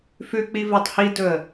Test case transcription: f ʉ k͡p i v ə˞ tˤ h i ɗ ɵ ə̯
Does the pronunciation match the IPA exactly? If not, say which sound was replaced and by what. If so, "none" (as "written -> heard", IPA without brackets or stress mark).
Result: ɗ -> d